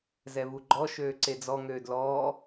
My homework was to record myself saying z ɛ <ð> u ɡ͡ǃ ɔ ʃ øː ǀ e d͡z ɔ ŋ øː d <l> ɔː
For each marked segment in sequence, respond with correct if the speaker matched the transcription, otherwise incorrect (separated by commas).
incorrect, correct